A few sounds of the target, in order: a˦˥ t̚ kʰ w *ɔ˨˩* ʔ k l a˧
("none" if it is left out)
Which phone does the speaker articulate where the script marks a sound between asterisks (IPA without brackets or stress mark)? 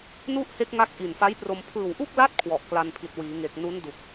ɔ˨˩